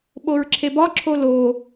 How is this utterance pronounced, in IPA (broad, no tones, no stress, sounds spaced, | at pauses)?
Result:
ɓ o ɹ ǁʰ e b ɒ ǁʰ o l o